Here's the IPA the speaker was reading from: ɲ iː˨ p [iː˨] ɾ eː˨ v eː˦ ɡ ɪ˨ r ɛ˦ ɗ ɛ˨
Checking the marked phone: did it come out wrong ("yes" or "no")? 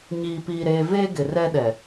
no